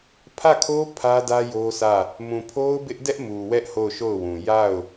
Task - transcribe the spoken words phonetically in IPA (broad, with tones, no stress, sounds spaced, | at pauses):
pʰ ä˦˨ kʰ o˦ pʰ ä˦ d ä˦ j o˦ s ä˦˨ | m ũ˨ pʰ o˦ ʊ̯ b ɪ˦ ʔ d ɛ˦ ʔ m u˨ w ɛ˦ ʔ h o˦˨ ʊ̯ ʃ o˦˨ ʊ̯ w ũ˨ j a˦˨ ʊ̯